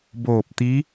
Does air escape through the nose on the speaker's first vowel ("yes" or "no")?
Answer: no